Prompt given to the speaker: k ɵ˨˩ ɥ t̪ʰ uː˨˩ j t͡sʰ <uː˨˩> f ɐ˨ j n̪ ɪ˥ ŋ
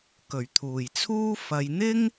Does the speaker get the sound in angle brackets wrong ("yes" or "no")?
yes